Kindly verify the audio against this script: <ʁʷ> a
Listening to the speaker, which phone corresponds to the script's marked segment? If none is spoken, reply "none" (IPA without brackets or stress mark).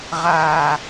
ʁ